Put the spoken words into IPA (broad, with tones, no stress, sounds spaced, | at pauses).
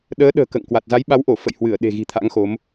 ɗ əː˨˦ ɗ ə̤ː˨˩ k ə̰ː˧˨ ŋ k w a˨˩ t̚ z a˨˦ j ɓ a˨˦ w ʔ o˧˩ f ə̰˧˨ j h w ɨ˧˩ ə̯ ɗ e̤˨˩ ɣ i̤˨˩ t̪ʰ a̰˧˥ ŋ x o˨˦ m